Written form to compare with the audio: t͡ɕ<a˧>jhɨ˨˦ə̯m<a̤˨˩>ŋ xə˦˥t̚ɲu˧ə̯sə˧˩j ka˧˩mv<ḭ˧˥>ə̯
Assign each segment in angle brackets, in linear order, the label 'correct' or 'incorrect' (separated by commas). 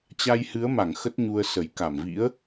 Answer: correct, incorrect, correct